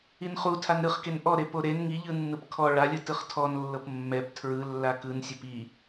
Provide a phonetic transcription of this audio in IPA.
i n χ u tʰ a n ɾ ɯ χ k e n ʔ ɔ ɾ e p o ɾ e n ŋ i ʎ ɯ nː ɯ p kʰ ɔ ɭ a lʲ ɯ t ɯ χ tʰ ɔ n lː ɤ p mː ɛ p tʰ ɹ ɯ lː a k ɯ n sʲ e p i

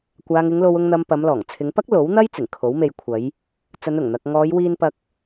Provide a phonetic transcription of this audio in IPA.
kʷ aː˨ ŋ ɪ˨˧ ŋ l o˨ w ʊ˨ ŋ n̪ ɐ˨ m p ɐ˨˧ m l ɔː˨˩ ŋ t͡sʰ ɪ˨˧ ŋ p ɐ˥ k̚ l o˨˥ w n̪ ɐ˥ j t͡s ɪ˨˩ ŋ kʰ o˨˥ w m e˧ j kʷʰ ɐ˨˧ j | t͡s ɐ˨˧ n ʊ˨˩ ŋ n̪ ɐ˨ k̚ ŋ ɔː˨˧ j w iː˧ n p ɐ˧ k̚

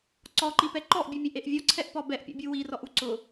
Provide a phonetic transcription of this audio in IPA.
ǀ ɔ ǃ i p ɛ ǃ ɔ ʔ bʲ u mʲ e ʔ e ʔ vʲ ɔ ǀʰ ɛ ʔ p ɔ b ɛ ʔ pʲ ɔ̰ bʲ u w i r ɔ ʔ u ǀ ʊ

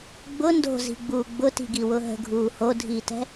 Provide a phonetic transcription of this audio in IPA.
ɡ͡b ʊ n d o̤ z i̤ ɡ͡b uː ɡ͡b ʊ t i̤ ɡ i w ʊ ɦ ə̤ ɡʱ uː h o dʱ iː t ɛ̤

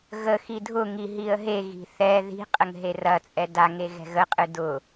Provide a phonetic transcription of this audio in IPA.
ɣ ə x i dʱ ʊ ŋ i ɦ i ə̯ ɦ e ɣ i̤ θ ɛ ð i̤ qʼ ə ŋ ɦ e r ɐ t͡sʼ ɛ d a ŋ e ɣ ɛ̤ ɣ ə qʼ ɨ d ʊ

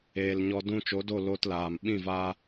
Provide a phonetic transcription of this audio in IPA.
eː˨ l ɲ ɔ˧ d ũ˦ t͡ʃ o˨˦ d o˦˨ l oː˧ t l aː˨ m ɓ ĩ˦˨ v aː˦

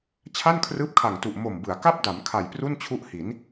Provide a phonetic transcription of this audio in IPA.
t͡ɕʰ a˥˩ n kʰ r ɯː˦˥ p̚ kʰ a˨˩ ŋ t u˨˩ ʔ m o˨˩ m b ɯ˩˦ a̯ k a˥˩ p̚ d a˩˦ m kʰ a˨˩ j p r u˥˩ n t͡ɕʰ u˦˥ ʔ h i˩˦ n

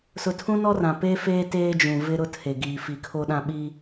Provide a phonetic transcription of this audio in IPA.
s ʊ˨ tʰ ũ˦ n ɔ˦ r ã˨ p e˦ f eː˦ t eː˦ d͡ʒ ũ˨ v ɪ˦ ɾ ʊ˦ tʰ e˨ ɡ iː˨ f i˨ kʰ o˦ ɗ ã˦ ɓ i˦

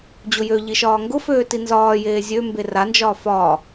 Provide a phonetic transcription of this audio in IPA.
d͡ʑ ʊ j ø ʎ i ʃ ɒː ŋ ɡ ʊ f øː t i n z ɒː j eː zʲ ø m b e r a n d͡ʒ ɒː f ɒː

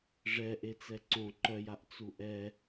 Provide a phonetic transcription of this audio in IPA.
ʐ ɛ ʔ e t͡s ɛ ǀ õ ǃ œ j a ʔ t͡s u ʔ ɛ

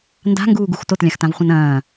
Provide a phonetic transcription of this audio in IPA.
n d a̤ ŋ ɡ uː ɡ u x t o t lʲ ã x t ã v χʷ ɐ̃ n ɐ̃ː

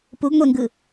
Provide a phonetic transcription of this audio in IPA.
p u ɡ ŋʷ e ŋ ɡ ɯ

